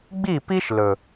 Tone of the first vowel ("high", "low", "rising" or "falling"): falling